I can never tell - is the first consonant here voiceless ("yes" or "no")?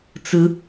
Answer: yes